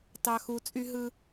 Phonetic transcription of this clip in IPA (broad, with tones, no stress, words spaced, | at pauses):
tɑ˨xu˨t͡sʼy˦ɦɯ˦